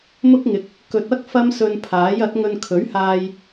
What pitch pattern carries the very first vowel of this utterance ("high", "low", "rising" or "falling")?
high